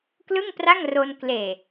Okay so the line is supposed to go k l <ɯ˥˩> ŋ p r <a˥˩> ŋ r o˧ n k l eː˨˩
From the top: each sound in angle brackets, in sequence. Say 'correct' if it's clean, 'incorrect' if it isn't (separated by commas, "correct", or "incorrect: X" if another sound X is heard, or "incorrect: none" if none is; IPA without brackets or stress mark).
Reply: correct, correct